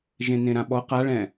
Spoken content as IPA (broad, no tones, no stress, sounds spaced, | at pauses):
ʒ ẽ n ẽ ɾ ã ɓ ɔ q a ɭ ɛ̃